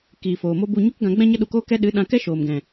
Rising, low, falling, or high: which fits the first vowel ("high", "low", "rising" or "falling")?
low